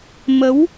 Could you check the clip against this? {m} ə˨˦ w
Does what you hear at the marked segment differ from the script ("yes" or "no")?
no